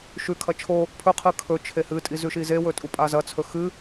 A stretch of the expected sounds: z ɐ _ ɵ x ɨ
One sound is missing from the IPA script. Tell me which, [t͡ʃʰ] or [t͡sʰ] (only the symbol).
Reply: t͡sʰ